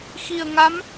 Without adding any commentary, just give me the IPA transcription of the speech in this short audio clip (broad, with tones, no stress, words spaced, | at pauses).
xi˨˩ə̯ŋa˧˥m